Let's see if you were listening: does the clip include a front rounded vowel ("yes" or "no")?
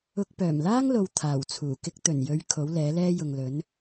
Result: yes